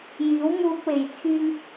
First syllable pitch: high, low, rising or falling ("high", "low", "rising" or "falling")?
rising